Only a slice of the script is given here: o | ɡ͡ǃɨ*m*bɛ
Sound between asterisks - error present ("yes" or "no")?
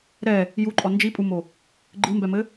no